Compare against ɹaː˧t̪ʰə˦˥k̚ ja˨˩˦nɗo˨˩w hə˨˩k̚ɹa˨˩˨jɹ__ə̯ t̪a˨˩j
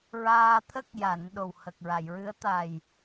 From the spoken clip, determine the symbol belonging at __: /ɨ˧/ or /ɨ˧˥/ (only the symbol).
ɨ˧˥